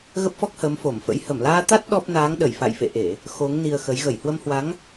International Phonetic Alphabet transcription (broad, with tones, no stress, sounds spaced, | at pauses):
ɣ ə˦˥ p̚ f ɔ˦˥ k̚ h əː˨˦ m f o˧˩ m f ə̰˧˥ j h ə˧˩ m l aː˧ t̪ a˦˥ t̚ ɗ ɔ˦˥ p̚ n aː˨˦ ŋ ɗ ə˧˩ j f a̰˧˨ j f ḛ˧˨ ʔ e˧˩˨ | x o˨˦ ŋ n i˧ ə̯ x ə˨˦ j ɣ ə˧˩ j h w ə˧ m h w a˨˦ ŋ